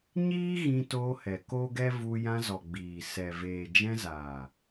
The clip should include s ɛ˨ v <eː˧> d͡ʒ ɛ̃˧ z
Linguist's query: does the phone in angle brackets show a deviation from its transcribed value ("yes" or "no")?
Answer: yes